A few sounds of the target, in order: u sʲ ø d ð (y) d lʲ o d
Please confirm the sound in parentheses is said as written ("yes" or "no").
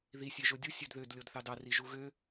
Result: no